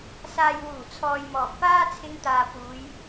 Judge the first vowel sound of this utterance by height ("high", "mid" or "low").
low